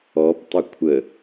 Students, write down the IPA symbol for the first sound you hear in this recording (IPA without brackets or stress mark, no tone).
ɔ